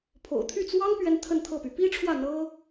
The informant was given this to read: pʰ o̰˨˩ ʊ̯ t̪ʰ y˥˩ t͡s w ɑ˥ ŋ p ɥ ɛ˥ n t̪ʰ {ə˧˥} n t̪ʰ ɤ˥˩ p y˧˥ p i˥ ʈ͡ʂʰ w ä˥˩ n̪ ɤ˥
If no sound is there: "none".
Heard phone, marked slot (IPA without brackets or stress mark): ə˥˧